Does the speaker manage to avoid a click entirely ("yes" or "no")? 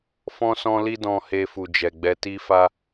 yes